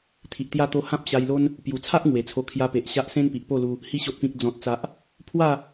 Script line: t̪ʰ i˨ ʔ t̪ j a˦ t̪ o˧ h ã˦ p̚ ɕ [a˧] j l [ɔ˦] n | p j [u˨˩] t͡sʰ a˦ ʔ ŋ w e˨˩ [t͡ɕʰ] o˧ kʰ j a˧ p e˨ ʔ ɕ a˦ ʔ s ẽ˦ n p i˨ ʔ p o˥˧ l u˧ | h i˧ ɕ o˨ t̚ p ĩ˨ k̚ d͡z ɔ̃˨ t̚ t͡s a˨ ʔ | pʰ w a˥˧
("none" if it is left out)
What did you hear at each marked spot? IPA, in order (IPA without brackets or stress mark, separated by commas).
a˧, o˦, u˨˩, t͡sʰ